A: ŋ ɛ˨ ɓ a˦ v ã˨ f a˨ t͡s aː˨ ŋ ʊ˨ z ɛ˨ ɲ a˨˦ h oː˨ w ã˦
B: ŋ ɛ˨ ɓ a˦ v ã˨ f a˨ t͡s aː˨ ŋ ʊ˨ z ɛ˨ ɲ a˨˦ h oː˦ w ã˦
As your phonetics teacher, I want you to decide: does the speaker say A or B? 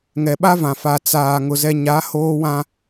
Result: B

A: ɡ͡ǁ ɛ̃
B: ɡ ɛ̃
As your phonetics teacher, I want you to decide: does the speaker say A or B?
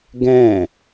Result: B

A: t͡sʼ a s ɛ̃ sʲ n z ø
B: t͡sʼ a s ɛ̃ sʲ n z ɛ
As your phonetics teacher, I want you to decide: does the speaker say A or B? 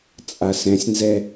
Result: B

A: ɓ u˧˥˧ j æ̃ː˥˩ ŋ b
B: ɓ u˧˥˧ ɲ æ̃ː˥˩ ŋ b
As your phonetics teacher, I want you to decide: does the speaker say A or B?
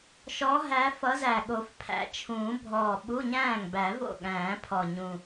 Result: B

